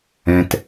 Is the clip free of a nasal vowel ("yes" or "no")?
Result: no